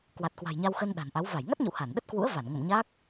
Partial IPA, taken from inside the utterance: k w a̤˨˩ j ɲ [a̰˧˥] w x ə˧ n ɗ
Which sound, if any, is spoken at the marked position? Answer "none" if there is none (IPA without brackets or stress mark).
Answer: a˧